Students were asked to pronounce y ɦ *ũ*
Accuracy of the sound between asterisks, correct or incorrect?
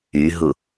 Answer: incorrect: u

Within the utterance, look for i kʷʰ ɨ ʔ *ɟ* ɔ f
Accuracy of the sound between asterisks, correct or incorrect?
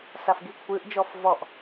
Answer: incorrect: d͡ʒ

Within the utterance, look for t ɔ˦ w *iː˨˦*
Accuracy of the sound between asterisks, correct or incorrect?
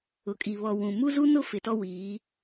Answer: correct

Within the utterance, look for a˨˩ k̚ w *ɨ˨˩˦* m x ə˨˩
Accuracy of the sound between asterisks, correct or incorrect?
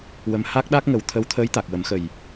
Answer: incorrect: ə˨˩˦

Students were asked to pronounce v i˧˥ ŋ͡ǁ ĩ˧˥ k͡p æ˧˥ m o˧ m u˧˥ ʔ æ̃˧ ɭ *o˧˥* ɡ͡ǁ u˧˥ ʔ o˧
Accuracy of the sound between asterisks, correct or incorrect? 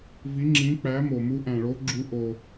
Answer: correct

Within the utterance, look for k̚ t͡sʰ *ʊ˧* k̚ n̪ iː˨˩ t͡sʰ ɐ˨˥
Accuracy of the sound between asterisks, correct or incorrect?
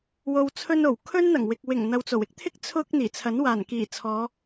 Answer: correct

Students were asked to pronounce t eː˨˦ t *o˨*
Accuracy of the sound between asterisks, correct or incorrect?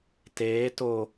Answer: correct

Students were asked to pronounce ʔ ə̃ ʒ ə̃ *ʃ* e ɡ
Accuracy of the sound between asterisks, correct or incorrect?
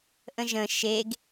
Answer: correct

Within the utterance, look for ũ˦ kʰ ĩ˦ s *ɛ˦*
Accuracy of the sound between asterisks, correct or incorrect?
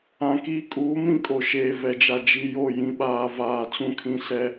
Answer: correct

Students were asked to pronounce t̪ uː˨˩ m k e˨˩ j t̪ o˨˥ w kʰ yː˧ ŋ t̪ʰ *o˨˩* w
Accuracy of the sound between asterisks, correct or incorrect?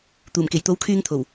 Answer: correct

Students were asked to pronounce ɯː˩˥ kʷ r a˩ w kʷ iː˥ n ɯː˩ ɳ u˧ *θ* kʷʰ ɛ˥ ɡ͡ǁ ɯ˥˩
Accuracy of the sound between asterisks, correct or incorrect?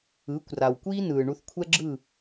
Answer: correct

